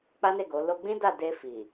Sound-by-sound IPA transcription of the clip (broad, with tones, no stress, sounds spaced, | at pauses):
k͡p a˦ n e˦˨ ɡ o˨˦ l o˧ ɡ͡b ĩ˦ d a˦˨ d e˧ f i˨